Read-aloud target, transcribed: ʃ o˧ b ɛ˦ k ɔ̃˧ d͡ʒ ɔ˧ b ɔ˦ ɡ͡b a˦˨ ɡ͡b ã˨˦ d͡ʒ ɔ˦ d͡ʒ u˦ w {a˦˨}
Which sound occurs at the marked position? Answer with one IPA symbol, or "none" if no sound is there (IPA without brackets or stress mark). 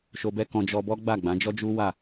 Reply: a˦˨